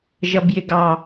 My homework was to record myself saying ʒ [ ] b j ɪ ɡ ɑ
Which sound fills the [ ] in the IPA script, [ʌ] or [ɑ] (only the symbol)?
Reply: ʌ